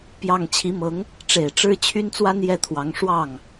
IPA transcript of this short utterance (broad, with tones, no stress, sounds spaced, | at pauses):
p j ɑ˥˩ ŋ t͡ɕʰ i˧˥ m ɤ˧˥ ŋ | ʈ͡ʂ e˨˩ ɪ̯ ʈ͡ʂ ɻ̩˥ t͡ɕʰ y˥ n t͡s w a˥ n j ɛ˥˩ t̪ʰ w ɑ˧˥ ŋ ʂ w ɑ˥˩ ŋ